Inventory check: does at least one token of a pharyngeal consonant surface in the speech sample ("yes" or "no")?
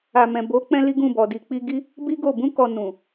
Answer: no